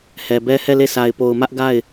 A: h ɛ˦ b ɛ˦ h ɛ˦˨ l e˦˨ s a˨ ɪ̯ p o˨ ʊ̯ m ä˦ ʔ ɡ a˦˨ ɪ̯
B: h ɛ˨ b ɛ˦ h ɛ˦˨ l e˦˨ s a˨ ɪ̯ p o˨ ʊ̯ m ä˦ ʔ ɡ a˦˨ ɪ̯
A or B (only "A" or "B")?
B